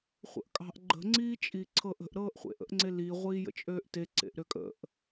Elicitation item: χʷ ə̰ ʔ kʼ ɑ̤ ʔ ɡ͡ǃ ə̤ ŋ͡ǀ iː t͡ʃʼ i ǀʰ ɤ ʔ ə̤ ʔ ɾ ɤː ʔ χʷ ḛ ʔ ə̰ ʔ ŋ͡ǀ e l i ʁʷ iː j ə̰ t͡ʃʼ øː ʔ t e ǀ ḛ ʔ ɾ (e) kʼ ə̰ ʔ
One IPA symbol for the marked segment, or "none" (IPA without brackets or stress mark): ø